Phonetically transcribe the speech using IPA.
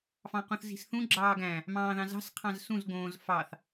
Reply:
f ɑ̃ q ũ θ z i̤ s θ ũ ɡ͡ǁ ɑː ɡ æ̃ | m ɑ̃ː ð ɑ̃ z ɑ̤ s qʰ ɑ̃ z s ũ z ɡ õː z f ɑ θ

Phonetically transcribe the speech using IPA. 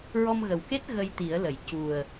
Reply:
ɹ ɔ˧ m ɣ ə˨˩ w k e˦˥ t̚ ɣ ə˧ j t̪ i˨˩˦ ə̯ l ə˨˩˨ j c u˨˩ ə̯

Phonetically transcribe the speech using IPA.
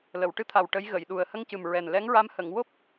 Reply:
l ə˨˩˨ w ʈ ɨ˧ t̪ʰ a˨˩ w ʈ ə˧˥ j ɣ ə˨˩˨ j ɗ u˨˩ ə̯ h ə˧ ŋ c ɨ˨˩ m ɹ ɛ˨˩ n l ɛ˧˥ ŋ ɹ a˧ m h ə˨˩˨ ŋ w o˦˥ p̚

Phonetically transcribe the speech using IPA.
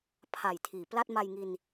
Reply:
pʰ a˨˩ j tʰ iː˩˦ p l a˥˩ t̚ m a˧ j ŋ i˧ n

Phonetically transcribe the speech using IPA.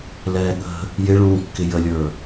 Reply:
l ɛː ɠ ə̤ | j ɪ ɭ ũː kː ɪ j ə lʲ ə˞

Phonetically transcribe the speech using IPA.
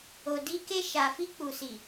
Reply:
o˨ d i˧ k e˧ ʃ a˨ f i˧ k͡p u˨ s i˨

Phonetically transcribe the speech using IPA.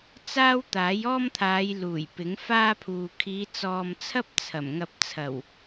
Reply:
t͡s aː˥ w t̪ aː˨˥ j ɔː˥ m t̪ʰ aː˨˧ j l uː˨˩ j p ɪ˨˥ ŋ f aː˥ pʰ uː˨ kʰ iː˨˧ t͡s ɔː˨ m t͡sʰ ɐ˥ p̚ t͡sʰ ɐ˨˩ m ŋ ɐ˧ p̚ t͡sʰ ɐ˨˩ w

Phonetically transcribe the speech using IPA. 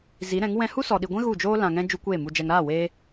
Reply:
z i˨˦ ɾ ɛ̃˨˦ ŋ w ɛ̃˦ h u˦ s ɔ˨ ɗ i˨ ɡʷ ɛ̃˦ ɣ u˦˨ d͡ʒ oː˦ l ã˨ ŋ ɛ̃˧ d͡ʒ u˦ kʷ eː˦˨ m u˧ d͡ʒ ɛ˧ ŋ ɾ aː˦˨ w eː˧

